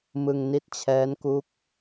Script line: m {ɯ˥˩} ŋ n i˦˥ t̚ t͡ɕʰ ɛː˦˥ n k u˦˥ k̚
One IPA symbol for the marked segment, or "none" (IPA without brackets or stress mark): ɯ˧